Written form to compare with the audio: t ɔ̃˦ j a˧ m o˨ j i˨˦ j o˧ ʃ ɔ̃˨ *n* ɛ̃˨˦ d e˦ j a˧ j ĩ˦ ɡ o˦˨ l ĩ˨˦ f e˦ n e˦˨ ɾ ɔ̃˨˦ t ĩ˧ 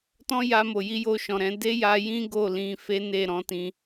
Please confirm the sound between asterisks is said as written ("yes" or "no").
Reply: no